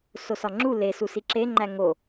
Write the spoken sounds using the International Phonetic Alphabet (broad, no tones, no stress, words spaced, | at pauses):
sosɒŋ͡ǁu lesu siǁeŋ͡ǃæ ŋo